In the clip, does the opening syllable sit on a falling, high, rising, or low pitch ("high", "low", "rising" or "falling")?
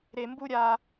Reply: low